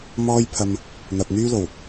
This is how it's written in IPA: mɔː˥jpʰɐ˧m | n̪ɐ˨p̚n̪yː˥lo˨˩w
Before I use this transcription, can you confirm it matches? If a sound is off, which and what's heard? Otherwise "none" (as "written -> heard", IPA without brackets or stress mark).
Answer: none